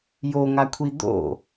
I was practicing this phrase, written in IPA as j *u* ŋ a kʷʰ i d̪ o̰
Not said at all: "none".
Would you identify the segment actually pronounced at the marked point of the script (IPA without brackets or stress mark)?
o